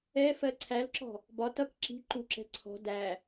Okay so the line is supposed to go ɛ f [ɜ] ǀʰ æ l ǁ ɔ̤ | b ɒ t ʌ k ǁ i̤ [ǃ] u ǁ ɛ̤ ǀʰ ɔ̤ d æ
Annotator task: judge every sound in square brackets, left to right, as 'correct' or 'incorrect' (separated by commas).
correct, correct